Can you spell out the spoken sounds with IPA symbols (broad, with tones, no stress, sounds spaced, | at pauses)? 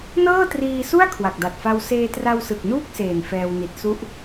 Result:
n ɤː˥˩ t r iː˧ s u˥˩ a̯ kʰ w a˨˩ k̚ d a˨˩ t̚ f a˧ w s eː˧ t r a˧ w s ɯ˨˩ k̚ n uː˥˩ k̚ s eː˨˩ n f ɛː˧ w n i˨˩ t̚ s u˦˥ ʔ